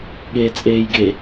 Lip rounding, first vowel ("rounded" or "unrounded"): unrounded